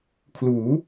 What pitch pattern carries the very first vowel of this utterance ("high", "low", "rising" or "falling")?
rising